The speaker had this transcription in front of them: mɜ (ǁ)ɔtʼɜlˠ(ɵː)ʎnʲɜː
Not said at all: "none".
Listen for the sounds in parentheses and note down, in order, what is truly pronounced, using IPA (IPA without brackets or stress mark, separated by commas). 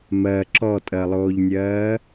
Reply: ǁ, oː